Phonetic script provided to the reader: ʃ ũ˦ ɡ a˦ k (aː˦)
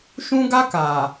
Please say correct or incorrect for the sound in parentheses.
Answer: incorrect: aː˨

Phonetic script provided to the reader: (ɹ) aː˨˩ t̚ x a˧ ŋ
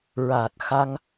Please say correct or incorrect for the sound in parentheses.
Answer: correct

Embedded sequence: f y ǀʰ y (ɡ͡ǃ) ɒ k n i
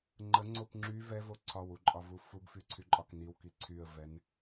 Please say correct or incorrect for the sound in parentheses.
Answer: incorrect: ǃʼ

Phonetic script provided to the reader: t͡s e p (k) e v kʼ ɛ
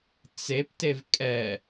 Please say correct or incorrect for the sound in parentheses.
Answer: incorrect: t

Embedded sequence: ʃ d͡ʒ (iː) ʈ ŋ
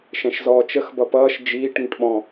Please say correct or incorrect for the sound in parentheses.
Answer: correct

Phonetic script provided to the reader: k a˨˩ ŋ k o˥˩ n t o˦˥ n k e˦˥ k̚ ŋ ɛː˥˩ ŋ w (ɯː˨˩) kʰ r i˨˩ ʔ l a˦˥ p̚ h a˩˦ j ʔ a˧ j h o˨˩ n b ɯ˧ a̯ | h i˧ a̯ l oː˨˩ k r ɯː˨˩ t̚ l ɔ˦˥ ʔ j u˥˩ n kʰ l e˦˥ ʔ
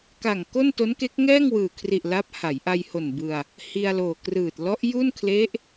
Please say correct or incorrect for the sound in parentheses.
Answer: correct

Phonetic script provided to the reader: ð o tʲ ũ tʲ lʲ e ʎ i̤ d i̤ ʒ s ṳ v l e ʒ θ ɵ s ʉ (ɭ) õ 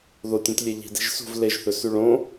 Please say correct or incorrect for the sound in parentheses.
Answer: correct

